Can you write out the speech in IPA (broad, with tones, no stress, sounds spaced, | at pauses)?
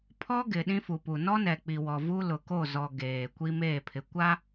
pʰ ɔ˦ ɡ ɪ˨ ɗ ĩ˦ f u˨ p u˨ n ɔ˦ n ɛ˨ k͡p i˨ w ɔ˨ v u˦ l ʊ˨ k o˦˨ z ɔ˨ ɡ eː˨ kʷ i˦ m eː˦˨ pʰ ɪ˨ kʷ a˦